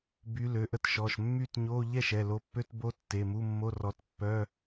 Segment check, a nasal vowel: absent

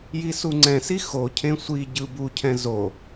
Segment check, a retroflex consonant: absent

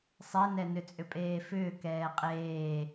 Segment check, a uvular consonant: present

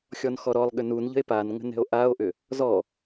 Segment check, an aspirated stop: absent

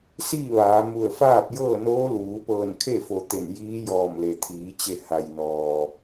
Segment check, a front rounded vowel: absent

